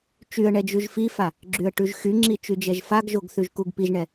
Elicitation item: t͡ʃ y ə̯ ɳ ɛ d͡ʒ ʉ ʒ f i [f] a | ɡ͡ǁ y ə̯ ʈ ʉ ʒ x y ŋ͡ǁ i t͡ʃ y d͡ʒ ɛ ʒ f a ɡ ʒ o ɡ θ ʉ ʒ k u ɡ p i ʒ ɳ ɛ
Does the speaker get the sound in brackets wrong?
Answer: no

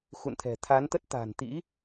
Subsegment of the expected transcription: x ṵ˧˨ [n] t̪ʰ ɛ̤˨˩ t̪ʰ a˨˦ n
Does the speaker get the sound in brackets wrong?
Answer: no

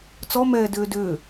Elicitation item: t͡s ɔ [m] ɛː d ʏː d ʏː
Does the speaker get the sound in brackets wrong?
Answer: no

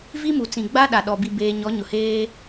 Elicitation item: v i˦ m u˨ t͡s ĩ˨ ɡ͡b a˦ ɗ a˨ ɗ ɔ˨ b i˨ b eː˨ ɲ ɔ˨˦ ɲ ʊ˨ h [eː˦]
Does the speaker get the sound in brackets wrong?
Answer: no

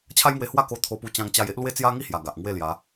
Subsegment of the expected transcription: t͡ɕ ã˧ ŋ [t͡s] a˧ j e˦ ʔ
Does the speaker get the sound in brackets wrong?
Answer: yes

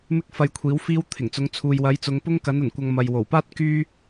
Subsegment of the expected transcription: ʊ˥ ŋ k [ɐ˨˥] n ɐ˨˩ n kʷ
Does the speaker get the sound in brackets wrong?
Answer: no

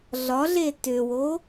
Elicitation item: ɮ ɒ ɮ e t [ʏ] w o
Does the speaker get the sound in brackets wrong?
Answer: no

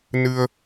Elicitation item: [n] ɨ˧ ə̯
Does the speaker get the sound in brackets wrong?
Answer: no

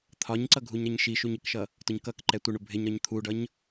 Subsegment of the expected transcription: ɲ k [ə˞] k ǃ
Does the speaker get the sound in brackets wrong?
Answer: yes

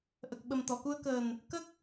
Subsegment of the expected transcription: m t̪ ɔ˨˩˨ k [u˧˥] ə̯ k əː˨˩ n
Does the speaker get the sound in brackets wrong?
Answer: yes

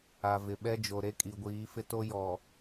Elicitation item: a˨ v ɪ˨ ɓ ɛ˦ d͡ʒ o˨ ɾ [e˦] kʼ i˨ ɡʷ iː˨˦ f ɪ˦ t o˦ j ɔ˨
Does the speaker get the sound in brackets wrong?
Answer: no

